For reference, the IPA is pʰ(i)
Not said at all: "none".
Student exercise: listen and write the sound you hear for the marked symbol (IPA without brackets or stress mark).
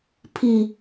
i